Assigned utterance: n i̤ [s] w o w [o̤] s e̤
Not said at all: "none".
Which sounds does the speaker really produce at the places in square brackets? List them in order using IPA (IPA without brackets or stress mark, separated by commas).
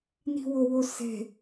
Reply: none, o